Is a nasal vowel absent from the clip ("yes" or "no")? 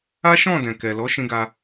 no